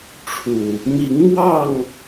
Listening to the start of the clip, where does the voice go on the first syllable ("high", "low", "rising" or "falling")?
low